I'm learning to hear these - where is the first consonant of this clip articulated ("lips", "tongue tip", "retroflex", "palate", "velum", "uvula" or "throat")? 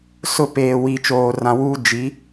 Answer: tongue tip